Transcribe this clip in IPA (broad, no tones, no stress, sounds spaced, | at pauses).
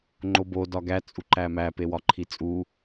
ŋ͡ǃ o b o d ɒ ɡ æ t͡sʼ u ǃ æ m æ p e w ɒ ǃʰ i t͡sʼ u